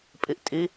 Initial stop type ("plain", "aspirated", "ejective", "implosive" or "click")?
ejective